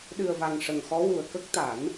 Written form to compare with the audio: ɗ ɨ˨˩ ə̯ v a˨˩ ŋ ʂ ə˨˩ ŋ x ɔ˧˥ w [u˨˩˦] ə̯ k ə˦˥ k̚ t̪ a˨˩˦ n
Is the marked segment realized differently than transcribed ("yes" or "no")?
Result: yes